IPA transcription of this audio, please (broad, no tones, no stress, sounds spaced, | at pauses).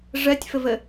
ʐ ɜ tʲ f ə v ə